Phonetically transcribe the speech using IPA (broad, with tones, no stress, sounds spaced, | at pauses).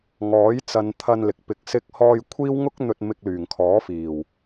ŋ ɔː˨˥ j t͡s ɐ˨˧ n t̪ʰ ɐ˧ n l ɪ˨ k̚ p ɪ˧ k̚ s ɪ˥ k̚ h ɔː˧ j kʷʰ iː˥ w ŋ ʊ˥ k̚ n̪ ɵ˧ t̚ m ɪ˧ k̚ l yː˨˩ ŋ kʰ ɔː˨˥ f iː˨˩ w